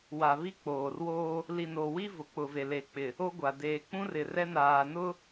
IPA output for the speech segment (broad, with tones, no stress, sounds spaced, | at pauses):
w a˨ β i˦ k͡p oː˨ r w oː˦ | l i˨ n o˨ w i˦ v ʊ˨ k͡p ʊ˨ v e˨ l e˨ k͡p ɪ˨ | o˦ ɡʷ a˨ d eː˨ k͡p ũ˦ r ɪ˨ r ɛ˦ n aː˨ n ʊ˦